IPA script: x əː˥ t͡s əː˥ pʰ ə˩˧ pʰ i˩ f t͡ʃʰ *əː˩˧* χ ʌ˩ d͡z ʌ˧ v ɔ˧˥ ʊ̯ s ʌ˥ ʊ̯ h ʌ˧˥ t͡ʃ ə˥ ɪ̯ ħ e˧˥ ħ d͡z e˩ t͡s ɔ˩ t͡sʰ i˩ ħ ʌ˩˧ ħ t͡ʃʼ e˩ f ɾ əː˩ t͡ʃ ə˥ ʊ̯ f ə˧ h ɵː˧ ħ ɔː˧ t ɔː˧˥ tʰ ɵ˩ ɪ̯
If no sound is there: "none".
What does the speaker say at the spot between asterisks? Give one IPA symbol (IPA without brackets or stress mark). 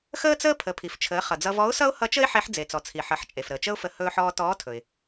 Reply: əː˩˧